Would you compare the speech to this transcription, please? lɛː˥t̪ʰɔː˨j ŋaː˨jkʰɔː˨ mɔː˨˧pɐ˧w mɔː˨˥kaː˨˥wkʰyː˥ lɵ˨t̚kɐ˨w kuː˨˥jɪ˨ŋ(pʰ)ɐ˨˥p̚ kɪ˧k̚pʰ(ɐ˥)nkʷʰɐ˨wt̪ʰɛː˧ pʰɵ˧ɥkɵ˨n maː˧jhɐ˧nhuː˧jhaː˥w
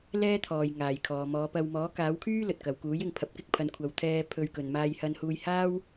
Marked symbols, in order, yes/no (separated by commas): yes, no